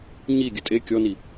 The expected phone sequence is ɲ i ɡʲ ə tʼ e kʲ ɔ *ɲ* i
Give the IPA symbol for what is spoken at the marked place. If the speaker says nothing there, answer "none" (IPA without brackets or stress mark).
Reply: n